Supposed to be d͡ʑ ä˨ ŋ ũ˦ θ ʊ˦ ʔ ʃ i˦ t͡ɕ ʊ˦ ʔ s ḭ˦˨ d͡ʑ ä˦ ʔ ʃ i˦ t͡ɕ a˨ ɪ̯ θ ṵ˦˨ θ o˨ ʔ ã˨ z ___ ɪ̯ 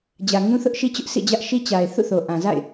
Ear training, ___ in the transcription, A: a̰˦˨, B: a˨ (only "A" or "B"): A